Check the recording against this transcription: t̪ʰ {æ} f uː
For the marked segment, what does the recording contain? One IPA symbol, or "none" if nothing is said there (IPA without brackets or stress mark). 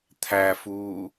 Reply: æ